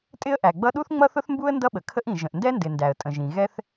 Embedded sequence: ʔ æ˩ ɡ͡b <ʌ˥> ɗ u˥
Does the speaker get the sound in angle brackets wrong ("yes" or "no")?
no